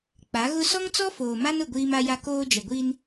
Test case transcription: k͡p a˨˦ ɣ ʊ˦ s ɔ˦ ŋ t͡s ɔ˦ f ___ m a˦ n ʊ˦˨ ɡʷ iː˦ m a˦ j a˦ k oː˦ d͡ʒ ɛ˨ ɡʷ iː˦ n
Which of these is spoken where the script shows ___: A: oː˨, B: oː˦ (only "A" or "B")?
A